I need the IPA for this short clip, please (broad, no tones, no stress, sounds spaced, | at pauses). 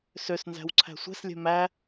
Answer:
s ø s n z æ̤ w ǀʰ æ̤ sʷ ɛ̤ s lʲ ɛ̤ m æ